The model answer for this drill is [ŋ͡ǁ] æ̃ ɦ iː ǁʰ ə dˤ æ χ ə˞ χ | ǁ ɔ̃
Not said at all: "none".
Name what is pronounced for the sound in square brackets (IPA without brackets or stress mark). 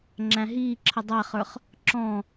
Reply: ŋ͡ǁ